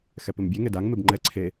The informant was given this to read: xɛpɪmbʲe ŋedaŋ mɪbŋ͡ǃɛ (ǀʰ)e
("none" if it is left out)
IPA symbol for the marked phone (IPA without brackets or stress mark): ǀʰ